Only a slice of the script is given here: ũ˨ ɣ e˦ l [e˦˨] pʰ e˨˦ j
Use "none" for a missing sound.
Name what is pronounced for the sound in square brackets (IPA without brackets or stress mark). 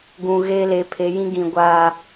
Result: e˨˦